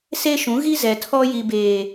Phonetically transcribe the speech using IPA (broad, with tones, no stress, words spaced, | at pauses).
se˦ʃũ˨˦ ɣi˦zɛ˨tʰɔ˦ ji˨beː˨